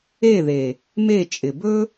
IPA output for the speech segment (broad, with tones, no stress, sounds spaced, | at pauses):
e˦˨ ð e˨ | m e˦˨ t͡ʃʼ ɪ˨ b ɵ˦